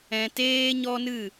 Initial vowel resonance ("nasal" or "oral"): nasal